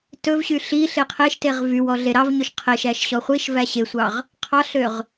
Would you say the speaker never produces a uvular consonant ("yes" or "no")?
no